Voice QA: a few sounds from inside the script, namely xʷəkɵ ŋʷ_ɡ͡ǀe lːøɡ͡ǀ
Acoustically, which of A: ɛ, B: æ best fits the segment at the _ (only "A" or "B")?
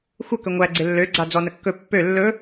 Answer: B